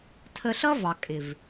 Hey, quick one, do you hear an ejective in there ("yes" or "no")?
yes